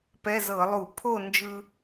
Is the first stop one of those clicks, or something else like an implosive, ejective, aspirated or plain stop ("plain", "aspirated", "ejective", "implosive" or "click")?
plain